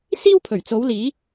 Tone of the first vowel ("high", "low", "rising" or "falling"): high